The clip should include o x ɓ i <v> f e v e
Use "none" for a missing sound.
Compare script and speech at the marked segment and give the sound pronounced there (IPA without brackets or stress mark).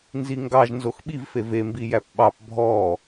v